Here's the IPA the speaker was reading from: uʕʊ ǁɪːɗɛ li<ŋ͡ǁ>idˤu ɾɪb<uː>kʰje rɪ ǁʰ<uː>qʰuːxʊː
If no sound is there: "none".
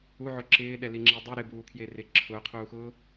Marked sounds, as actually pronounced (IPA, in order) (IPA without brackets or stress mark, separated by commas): ŋ͡ǁ, uː, ʊː